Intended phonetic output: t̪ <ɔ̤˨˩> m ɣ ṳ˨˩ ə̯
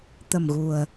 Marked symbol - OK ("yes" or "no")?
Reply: no